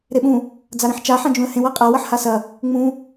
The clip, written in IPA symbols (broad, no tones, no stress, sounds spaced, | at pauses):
ɾ e ɓ ũ | d͡z a ɾ ĩ ħ t͡ʃ a ħ ã d͡ʒ ũ ə̯ h ẽ w a qʼ a w ɐ ħ h a s ɐ | ŋ͡m ũ